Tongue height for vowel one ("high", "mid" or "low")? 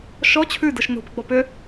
mid